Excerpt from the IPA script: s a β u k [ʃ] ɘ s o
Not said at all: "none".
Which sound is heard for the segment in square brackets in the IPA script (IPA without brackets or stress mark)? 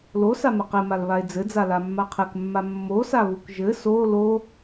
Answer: ʒ